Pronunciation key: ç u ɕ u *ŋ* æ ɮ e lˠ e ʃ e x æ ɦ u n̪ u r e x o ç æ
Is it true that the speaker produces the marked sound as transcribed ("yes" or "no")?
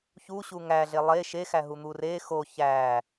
yes